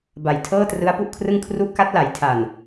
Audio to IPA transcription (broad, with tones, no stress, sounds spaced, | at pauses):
b a˨˩ j tʰ ɤː˥˩ t r ɯ˦˥ a̯ p u˦˥ ʔ kʰ r ɯ˥˩ ŋ kʰ r u˥˩ ʔ k a˦˥ t̚ l a˩˦ j tʰ a˨˩ n